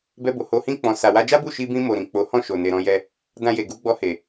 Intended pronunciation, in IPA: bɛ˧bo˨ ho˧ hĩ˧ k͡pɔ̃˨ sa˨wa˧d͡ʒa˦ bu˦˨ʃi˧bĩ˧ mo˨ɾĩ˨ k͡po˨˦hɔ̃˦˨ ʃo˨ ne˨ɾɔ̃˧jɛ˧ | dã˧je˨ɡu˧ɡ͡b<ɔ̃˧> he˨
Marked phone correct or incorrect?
incorrect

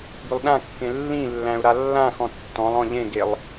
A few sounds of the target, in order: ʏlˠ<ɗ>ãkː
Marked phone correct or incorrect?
correct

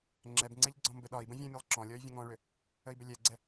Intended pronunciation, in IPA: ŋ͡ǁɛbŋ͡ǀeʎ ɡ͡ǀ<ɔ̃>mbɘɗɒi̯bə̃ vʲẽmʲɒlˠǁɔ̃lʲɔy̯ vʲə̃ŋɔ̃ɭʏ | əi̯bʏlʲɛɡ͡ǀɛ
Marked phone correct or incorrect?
correct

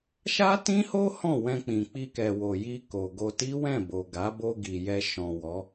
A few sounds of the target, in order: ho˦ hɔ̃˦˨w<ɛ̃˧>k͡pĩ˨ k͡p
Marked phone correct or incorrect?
correct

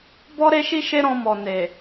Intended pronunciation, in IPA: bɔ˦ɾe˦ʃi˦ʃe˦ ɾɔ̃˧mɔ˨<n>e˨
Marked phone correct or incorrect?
correct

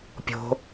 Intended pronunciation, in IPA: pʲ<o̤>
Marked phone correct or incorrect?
correct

